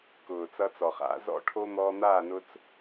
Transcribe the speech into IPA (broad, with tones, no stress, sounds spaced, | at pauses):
k ʊː˨ t͡s ʌ˧ t͡s ɔ˨ χ a̰˨˦ z ɔ̰˧ ʈʰ o˧ n̪ ɔː˧ n̪ aː˦˨ n ʊː˧ t͡s